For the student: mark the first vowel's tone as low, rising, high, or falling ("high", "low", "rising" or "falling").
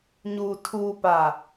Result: low